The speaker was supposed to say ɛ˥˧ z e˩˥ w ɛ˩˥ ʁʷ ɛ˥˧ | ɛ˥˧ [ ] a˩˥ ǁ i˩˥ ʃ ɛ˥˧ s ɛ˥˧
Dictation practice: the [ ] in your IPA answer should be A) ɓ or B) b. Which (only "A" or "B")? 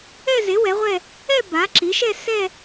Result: B